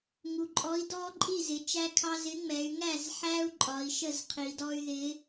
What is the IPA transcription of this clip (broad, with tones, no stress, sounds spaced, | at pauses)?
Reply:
ŋ u˩˧ ǃʼ ɔ˨˥ i̯ d ɔː˦ ǃʼ i˥˩ z ɪ˩˧ t͡ʃ æ˦ kʰ ɑ˦ z ɪ˨˥ ŋ͡m ɛ˩˧ y̯ ŋ æ˥˩ z ħ æː˦ u̯ ǃʼ ɒ˩˧ i̯ ʃ ə˥˩ z qʰ i˩˧ d ɔ˦ y̯ ð ɪː˨˥